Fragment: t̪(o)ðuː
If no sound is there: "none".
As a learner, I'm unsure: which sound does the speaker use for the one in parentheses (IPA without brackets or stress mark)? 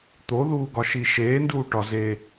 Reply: o